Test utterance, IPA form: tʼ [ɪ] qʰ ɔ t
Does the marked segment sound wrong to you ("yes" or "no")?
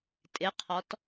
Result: no